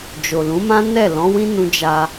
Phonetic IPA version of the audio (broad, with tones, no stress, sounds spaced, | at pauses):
d͡ʒ o˨ l ũ˨˦ m ã˦ n ɛ˦˨ l ɔ̃˨˦ w ĩ˦ n ũ˧ d͡ʒ a˧